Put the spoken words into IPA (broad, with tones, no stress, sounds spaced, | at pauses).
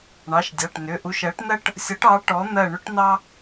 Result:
ɳ ɑ˩˧˩ ʃ dʲ ɑ˩˧˩ ʈ n ʏ˩˧˩ ʔ u˨˥ ʃ ɜ˨˥ ʈ n ɜ˥ ʈ | sʲ ɔ˨˥ ʈ ɑ˨˥ ʈ ɔ˨˥ n̪ ɜ˦˨ ɳ ʏ˥ ʈ n ɑ˥